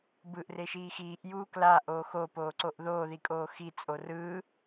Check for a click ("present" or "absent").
present